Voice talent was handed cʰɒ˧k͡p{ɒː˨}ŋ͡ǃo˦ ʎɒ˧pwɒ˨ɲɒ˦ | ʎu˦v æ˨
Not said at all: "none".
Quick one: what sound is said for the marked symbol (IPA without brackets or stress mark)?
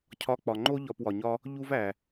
ɒ˨